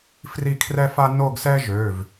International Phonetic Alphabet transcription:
fri˥˧kʰrɛ˥fa˥ no˥˧ɡsɛ˥ʒø˩˧˩v

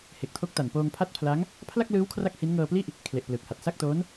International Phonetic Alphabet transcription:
he˨˩k̚tʰo˦˥k̚ta˨˩n poː˧ŋpʰa˥˩t̚pʰla˦˥ŋ | pʰla˥˩k̚lɯː˦˥w kʰra˥˩k̚hi˦˥n ŋɤː˧pli˥˩ʔ | kʰle˨˩ʔ plɯː˨˩k̚ha˨˩t̚ sa˥˩k̚toː˦˥n

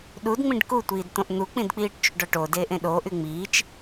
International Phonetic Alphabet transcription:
ɗudŋ͡mĩɖ kutʷiːd t̪õʔn̪uk͡pĩdk͡piːʈ t͡ʃuɖɔʈo deːʔẽɗoːʔy ŋ͡miːt͡ʃ

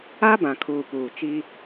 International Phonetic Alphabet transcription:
a˦bã˨kʰuː˨ puː˨t͡ʃi˦

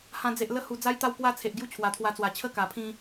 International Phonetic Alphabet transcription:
hã˧ d͡ze˨ʔ lə˧hu˨˩ d͡za˦jt̪a˥˧wkwa˦ t͡sʰe˨ʔ ɡju˦t͡ɕʰwa˨˩t̪ʰwa˧t͡swa˨˩ t͡ɕʰə˦ka˨˩ pʰĩ˦

